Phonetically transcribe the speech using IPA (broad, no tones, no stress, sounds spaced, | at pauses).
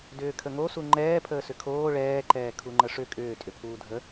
d ʏː kʰ ə ŋ o s u ŋ͡ǃ ɛː pʰ əː s ʏ kʰ oː ɭ ɛː ǃ ɛː kʰ u ŋ͡ǃ ə ʂ ʏ kʼ ʏː tʼ ʏ pʰ uː dʱ ə